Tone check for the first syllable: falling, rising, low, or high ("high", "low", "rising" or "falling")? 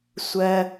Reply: low